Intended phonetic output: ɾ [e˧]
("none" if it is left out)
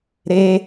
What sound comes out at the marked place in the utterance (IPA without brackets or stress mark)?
e˧